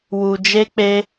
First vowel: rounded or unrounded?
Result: rounded